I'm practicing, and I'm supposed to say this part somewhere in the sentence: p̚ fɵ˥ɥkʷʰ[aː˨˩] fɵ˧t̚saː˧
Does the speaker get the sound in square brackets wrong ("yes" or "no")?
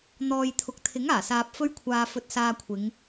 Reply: yes